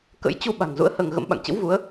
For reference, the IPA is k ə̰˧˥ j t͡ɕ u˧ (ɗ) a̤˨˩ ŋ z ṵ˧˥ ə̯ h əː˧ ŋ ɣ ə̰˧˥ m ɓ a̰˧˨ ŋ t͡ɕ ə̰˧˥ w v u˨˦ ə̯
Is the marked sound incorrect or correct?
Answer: incorrect